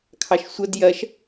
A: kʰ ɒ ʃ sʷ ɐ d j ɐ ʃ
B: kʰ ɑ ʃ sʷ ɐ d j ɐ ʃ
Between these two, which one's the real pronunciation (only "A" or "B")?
B